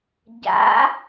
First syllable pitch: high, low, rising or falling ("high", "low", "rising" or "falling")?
rising